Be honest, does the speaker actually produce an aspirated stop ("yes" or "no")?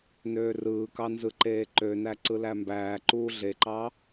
no